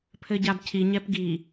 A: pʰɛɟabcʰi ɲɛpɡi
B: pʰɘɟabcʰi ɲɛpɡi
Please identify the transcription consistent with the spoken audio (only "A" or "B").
B